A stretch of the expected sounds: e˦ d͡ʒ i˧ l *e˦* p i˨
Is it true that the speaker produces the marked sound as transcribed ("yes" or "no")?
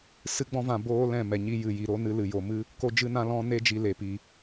no